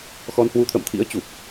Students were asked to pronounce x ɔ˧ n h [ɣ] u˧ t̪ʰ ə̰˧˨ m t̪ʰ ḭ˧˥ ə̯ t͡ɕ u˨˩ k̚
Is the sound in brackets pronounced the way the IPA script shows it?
no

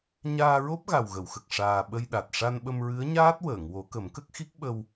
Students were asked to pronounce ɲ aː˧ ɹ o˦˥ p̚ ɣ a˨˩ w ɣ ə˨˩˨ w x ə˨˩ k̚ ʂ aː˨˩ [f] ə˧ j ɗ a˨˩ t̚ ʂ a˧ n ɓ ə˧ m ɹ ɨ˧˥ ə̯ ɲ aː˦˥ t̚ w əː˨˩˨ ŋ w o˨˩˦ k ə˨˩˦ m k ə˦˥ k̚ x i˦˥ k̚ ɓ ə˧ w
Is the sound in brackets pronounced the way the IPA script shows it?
no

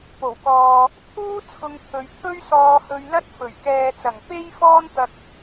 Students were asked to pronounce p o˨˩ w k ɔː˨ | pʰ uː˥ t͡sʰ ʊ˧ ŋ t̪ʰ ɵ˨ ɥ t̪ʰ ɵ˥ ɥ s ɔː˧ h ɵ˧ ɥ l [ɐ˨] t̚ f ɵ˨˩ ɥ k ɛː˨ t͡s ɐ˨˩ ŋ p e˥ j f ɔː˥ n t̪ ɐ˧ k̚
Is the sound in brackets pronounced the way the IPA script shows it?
no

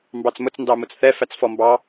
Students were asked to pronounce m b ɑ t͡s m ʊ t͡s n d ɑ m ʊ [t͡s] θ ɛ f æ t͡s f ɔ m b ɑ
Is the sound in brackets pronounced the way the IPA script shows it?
yes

